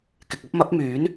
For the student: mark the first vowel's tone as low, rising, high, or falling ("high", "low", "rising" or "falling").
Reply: low